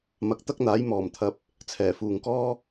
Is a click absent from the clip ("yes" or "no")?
yes